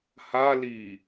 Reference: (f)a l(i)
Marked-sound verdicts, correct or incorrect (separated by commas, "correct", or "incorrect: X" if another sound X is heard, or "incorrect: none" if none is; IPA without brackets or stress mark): incorrect: h, correct